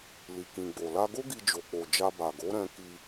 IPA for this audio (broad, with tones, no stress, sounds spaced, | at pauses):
l i˨ k ĩ˨ ɡ͡b o˨ l a˧ ɡ o˦ ɡ i˧ d͡ʒ o˨ k͡p o˨ d͡ʒ a˧ b a˨ ɡ o˨˦ ɾ ɛ̃˧ k i˧